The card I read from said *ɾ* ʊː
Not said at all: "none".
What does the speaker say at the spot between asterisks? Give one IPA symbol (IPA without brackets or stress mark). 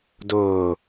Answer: d